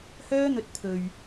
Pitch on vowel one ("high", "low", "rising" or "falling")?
high